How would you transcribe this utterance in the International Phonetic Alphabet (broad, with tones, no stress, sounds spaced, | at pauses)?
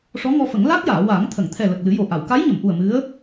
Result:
ʂ ɔ˧˥ ŋ ɔ˧ f ə˨˩˦ ŋ l a˦˥ k̚ j aː˨˩˨ w aː˨˩˦ ŋ t̪ʰ ə˨˩˨ ŋ t̪ʰ ɛ˨˩ l ə˨˩ k̚ l ɨ˨˩˦ j o˨˩ ʔ a˨˩˨ w k a˧˥ j ɲ ə˨˩˨ m ʔ u˨˩ ə̯ m ɨ˧˥ ə̯